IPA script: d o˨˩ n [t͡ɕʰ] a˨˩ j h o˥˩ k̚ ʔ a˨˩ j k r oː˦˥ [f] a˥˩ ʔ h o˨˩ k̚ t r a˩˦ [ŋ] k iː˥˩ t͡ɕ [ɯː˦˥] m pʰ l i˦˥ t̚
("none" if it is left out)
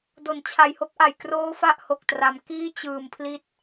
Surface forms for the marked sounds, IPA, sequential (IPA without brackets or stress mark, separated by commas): t͡ɕʰ, f, m, ɯː˨˩